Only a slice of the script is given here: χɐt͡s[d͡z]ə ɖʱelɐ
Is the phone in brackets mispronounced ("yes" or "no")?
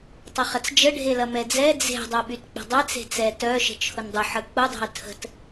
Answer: yes